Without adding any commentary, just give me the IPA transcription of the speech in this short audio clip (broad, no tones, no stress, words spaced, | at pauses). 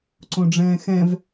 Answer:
ǀõɖ͡ʐɛ̃ːxɛ̃v